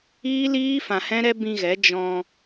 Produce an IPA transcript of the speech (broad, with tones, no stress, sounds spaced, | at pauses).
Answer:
iː˦ l iː˦ f ã˧ h ɛ̃˦ ɾ ɛ˦ b ĩ˧ ɣ ɛ˨˦ d͡ʒ ɔ̃˧